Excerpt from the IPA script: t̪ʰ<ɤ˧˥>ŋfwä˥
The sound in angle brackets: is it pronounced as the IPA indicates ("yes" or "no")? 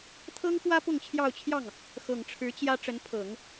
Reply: no